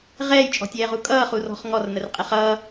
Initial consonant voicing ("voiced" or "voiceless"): voiced